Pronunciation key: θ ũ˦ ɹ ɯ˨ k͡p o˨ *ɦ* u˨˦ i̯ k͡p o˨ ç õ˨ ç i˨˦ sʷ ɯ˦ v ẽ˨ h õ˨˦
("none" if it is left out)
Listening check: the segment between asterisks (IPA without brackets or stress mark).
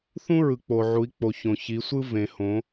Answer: ʕ